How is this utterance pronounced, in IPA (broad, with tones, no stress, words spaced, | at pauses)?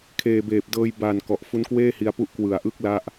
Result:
kʰeː˨˩beː˨˩p̚dɤː˧j ba˨˩n kɔ˨˩ʔ fu˦˥nkweː˥˩hi˧a̯pu˦˥ʔ kwɯ˨˩a̯ʔɯ˦˥k̚ la˥˩ʔ